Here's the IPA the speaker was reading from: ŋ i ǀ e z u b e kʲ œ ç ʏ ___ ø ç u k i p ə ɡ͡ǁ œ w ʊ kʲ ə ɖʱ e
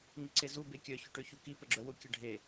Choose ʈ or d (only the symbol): ʈ